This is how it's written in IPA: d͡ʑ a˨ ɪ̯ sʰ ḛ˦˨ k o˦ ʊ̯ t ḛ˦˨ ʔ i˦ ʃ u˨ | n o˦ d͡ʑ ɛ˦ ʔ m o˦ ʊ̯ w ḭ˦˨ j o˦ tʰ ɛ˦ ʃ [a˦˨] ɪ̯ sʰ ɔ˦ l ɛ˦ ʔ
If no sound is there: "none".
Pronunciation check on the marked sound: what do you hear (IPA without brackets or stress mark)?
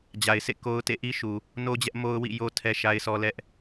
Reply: a˦